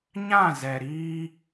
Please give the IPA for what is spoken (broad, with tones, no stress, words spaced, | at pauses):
ɲã˦˨zɛ˨ ɾiː˦